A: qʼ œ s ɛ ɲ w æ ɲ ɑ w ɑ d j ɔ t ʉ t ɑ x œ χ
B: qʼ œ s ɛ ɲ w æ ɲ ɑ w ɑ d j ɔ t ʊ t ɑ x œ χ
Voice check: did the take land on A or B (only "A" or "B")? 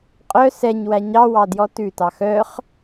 A